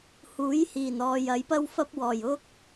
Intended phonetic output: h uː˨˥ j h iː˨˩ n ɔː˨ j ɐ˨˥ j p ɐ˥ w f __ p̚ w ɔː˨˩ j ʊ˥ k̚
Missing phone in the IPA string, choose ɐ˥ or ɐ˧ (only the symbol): ɐ˥